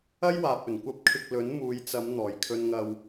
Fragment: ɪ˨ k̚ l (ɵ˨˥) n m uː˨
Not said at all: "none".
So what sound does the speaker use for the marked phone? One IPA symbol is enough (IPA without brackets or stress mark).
ɵ˨˥